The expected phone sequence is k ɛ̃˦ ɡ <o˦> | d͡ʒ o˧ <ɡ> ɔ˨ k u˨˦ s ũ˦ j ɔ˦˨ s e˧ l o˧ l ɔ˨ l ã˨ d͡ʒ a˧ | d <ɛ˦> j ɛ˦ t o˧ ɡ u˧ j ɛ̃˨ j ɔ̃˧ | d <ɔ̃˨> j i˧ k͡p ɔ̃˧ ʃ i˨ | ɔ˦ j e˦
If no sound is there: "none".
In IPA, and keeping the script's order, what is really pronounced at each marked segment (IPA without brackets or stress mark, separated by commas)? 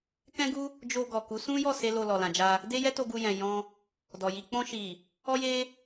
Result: u˦, ɡ, e˦, ɔ˨